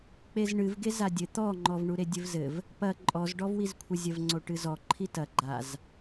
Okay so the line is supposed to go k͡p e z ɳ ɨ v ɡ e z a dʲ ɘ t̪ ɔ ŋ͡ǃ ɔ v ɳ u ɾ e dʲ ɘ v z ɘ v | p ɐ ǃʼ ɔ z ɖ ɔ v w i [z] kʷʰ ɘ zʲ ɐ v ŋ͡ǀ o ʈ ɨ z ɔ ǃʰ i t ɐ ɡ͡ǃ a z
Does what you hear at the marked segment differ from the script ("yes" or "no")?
no